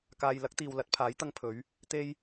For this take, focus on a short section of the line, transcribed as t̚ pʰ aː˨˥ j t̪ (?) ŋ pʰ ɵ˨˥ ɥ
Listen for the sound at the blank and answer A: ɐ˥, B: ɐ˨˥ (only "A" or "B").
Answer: A